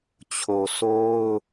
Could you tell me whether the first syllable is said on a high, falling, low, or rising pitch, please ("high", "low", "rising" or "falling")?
low